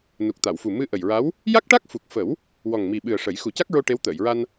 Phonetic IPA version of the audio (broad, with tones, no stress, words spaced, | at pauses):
nu˨˩k̚t̪a˨˩˨wfu˨˩ mɨ˧ʔə˨˩jɹa˧˥w | ja˦˥k̚ʈa˦˥k̚fu˨˩k̚ fə˨˩˦w | wɔ˨˩ŋmi˨˩ɓɨ˨˩ə̯ ʂə˨˩˦j xu˨˩˦ca˦˥k̚ɹo˧ ʈe˧˥wt̪əː˨˩˨jɹa˧n